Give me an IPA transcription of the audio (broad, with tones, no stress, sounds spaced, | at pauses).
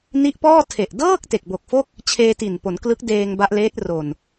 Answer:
n i˦˥ ʔ p ɔː˥˩ tʰ e˨˩ ʔ d ɤː˥˩ k̚ t e˨˩ k̚ b o˨˩ k̚ f o˥˩ k̚ | t͡ɕʰ eː˧ t i˨˩ n p o˩˦ n k l ɯ˦˥ k̚ d eː˧ ŋ b a˦˥ ʔ l eː˦˥ t̚ r o˨˩ n